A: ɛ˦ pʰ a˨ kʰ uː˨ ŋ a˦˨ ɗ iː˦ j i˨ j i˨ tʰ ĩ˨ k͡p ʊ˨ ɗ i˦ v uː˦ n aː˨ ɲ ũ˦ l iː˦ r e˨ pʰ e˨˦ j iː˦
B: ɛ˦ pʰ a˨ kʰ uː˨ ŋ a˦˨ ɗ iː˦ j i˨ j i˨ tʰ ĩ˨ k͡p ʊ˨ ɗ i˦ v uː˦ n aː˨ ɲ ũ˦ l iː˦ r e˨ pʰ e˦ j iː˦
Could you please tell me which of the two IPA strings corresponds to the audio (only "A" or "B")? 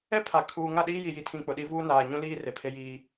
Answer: B